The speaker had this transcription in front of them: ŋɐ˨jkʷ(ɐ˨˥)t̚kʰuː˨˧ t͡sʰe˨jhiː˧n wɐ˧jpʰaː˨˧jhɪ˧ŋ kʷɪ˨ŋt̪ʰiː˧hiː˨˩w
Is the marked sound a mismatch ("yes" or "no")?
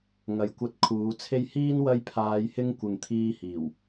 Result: yes